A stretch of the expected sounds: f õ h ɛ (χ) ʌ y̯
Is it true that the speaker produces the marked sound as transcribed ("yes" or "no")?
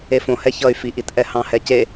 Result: no